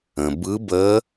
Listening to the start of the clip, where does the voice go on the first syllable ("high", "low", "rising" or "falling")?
low